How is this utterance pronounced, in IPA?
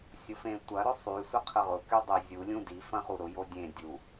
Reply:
sʲ ʊ f ẽ tʷ ɐ ɾ ʊ sˤ y sʷ ə qʰ ə ʁ ʊ k y dˤ e zʲ u lʲ ũ d i f ɐ̃ χ u ɾ ʊ j o dʲ ẽ dʲ u

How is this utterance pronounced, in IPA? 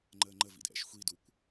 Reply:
ŋ͡ǃ əː ŋ͡ǃ ə v ḭ d ʔ ɛ̰ ʃ xʷ i d u kʷ

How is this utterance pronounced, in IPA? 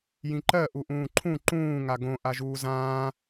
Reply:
j ĩ ǃ ɜ ʔ u ʔ ũː ǃʰ ũ ǃ ũː ŋ a ɡ õ ʔ a ʒ uː z ãː

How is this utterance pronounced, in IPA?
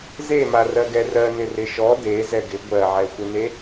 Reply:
z e m a r ɜ ɡ ɛ r ɜ n ɪ r ɪ ʃ ɔ d e z ɛ ɡ ɪ ɡʷ ɜ ʕ ɛ xʷ ɪ n e

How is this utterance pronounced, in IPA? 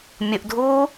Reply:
mʲ ʊ ʔ dʱ uː

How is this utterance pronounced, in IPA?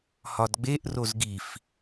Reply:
h ɒ d ɡ͡b e ʔ r o z ɡ i f

